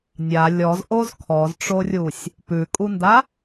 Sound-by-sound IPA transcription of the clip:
nʲ a lʲ ɔ z ʔ o z kʰ ɔ z ʈ͡ʂ o rʲ u sʲ | p ʉ kʼ u n d a

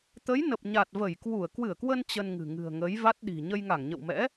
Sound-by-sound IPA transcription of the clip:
t̪ ə˨˦ j n ə˨˩ p̚ ɲ a˨˩ t̚ v ə˧˩ j k w u˧˩ ə̯ k w ɨ˧˩ ə̯ k w ə˧ n t͡ɕ ə˧ n ŋ ɨ̤˨˩ ŋ ɨ̤˨˩ ə̯ ŋ ə˨˦ j v a˦˥ t̚ ɗ i̤˨˩ ɲ ə˧ j ŋ a˧˩ ŋ ɲ ə̰˧˨ w m ɛ̰˧˥

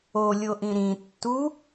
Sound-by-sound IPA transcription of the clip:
o lʲ o ʔ ĩ ɾ ĩ tː u

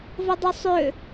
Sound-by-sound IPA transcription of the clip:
v ɘ dˤ ʉ sˤ ʏ

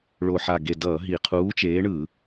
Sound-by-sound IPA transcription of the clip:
ɭ o˧˩ ħ a˧˩ ɡ e˧˩ d ʌː˧˩˧ ɦ i˧˩˧ qʰ uː˨˥ t͡ʃ eː˨˥ ɳ ɯ˧˩˧

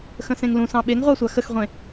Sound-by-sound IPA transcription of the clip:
x ə̃ s ẽ ŋ l ũ s ɑ̃ ɓ e ŋ ʁʷ ɑ sʷ a x ə x ʁʷ ẽ

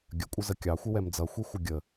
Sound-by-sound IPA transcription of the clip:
ɡʲ ə kʷʼ ə z ə kʲ ɑ xʷ ɪ w ɛ m d͡z ʌ xʷ i xʷ ə ɡʲ ə

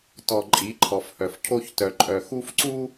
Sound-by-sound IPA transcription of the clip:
t ɔ˨ ǃʼ i˨˦ ǃʰ ɔ˨ f h œ˨ f cʰ o˦ ç t œ˨ ǃʼ œ˨ x u˦ f ǀ u˦

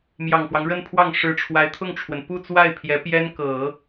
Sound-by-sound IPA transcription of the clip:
m j ɑ˨˩ ŋ f w ɑ˦ ŋ ɻ ə˥˧ n pʰ w ɑ˥˩ ŋ ʂ ɻ̩˧˥ ʈ͡ʂʰ w a˧˥ ɪ̯ t̪ʰ ʊ˥˩ ŋ ʈ͡ʂʰ w ə˩ n p u˥˧ t͡s w a˥˩ ɪ̯ pʰ j ɛ˧˥ p j ɛ˥ n k ɤ˨˩˦

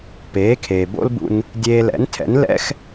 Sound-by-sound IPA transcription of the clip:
p eː˩˥ kʰ eː˩ b o̰˥ l b ṵ˧ n | dʲ eː˧ l ɛ̰˩˥ n tʰ ɛ̰˩˥ n l ɛ̰˥ x

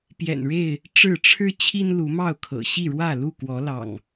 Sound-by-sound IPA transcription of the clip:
p j ɛ̰˨˩ n ɻ e˥˨ ɪ̯ | ʈ͡ʂ ɻ̩˥˨ ʈ͡ʂʰ ɻ̩˦ t͡ɕʰ i˦ n l u˨˦ m ɑ˥˨ ʊ̯ kʰ ɤ̰˨˩ ɕ i˥˨ ɻ w ä˥˨ l u˥˨ k w ɔ˨˦ l ɑ̰˨˩ ŋ

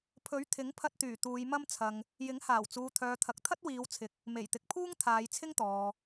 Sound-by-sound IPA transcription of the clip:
pʰ ɵ˨˥ ɥ t̪ʰ ɪ˨˥ ŋ pʰ ɐ˧ t̚ t̪ yː˨˩ t̪ uː˨˧ j m ɐ˥ m t͡sʰ ɐ˧ ŋ | j ɪ˨˥ ŋ h aː˨˩ w t͡s uː˨ t̪ʰ œː˨ t̪ʰ ɐ˨ k̚ t̪ʰ ɐ˥ t̚ w iː˨˧ w t͡sʰ ɪ˨˥ k̚ | m e˨˩ j t̪ ɪ˨ k̚ pʰ uː˥ ŋ t̪ʰ aː˨˧ j t͡sʰ ɪ˥ ŋ t̪ ɔː˨

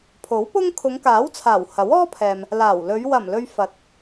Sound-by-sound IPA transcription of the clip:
pʰ o˨˥ w p ʊ˥ ŋ kʰ ʊ˨˧ ŋ k aː˨˥ w t͡sʰ aː˨˩ w h ɐ˨˥ w ɔː˥ pʰ ɛː˨ m | l aː˨˩ w l ɵ˨˧ ɥ w ɐ˨˩ m l ɵ˧ ɥ f ɐ˨˥ t̚

